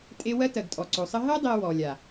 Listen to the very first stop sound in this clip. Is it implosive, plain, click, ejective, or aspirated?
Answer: ejective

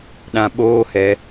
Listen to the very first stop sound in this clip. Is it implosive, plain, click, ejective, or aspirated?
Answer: implosive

